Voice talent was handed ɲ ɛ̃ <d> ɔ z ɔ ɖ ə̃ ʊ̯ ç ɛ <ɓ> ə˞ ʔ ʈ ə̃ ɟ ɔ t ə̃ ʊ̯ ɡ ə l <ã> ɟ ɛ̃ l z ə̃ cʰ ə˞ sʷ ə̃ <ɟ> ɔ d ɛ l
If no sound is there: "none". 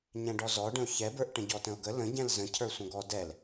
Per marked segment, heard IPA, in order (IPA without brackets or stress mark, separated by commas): ɖ, b, ə̃, ɡ